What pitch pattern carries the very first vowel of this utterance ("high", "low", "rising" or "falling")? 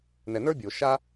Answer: low